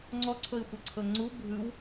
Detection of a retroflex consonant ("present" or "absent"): absent